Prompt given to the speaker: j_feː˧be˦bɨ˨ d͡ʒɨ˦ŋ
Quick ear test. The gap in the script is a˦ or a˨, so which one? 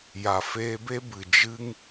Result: a˨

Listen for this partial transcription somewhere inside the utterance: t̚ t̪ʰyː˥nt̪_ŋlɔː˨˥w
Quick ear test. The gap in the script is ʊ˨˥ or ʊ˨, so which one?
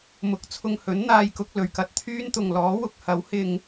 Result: ʊ˨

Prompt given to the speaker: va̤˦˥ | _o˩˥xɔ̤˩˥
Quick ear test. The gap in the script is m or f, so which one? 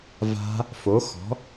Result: f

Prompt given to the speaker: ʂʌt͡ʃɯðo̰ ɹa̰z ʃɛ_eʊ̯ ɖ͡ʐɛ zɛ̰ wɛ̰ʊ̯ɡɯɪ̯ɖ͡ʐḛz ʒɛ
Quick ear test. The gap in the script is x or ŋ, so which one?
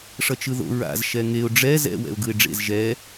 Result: ŋ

